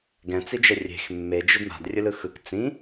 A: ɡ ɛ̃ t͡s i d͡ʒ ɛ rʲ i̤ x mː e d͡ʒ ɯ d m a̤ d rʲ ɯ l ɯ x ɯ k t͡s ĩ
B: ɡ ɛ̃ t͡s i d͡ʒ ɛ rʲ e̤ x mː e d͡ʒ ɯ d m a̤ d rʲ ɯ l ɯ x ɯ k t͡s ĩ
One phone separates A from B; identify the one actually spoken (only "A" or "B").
B